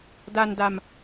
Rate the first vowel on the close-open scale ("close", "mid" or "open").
open